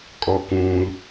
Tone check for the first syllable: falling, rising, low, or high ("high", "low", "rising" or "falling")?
low